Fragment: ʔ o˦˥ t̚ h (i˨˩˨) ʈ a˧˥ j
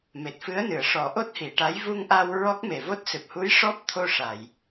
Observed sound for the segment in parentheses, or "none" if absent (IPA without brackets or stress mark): i˨˩˨